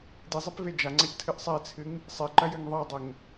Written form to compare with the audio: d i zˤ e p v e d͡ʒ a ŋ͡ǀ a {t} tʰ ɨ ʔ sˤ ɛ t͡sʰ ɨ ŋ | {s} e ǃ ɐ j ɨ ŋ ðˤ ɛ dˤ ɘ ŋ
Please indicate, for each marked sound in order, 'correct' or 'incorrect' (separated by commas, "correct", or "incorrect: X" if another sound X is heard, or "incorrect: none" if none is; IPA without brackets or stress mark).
incorrect: c, incorrect: sˤ